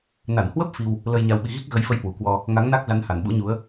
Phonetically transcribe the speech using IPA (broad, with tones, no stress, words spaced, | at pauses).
na˧˩nhwə˦˥p̚ fi˧w | lə˧jɲa˧wɓi˧ ɣi˦˥k̚ɣə˨˦jfə˨˦j hwu˨˩kwɔ˧ | ŋa˨˦ŋna˦˥k̚za˨˦n ha˧˩nɓṵ˧˥ɲu˨˦ə̯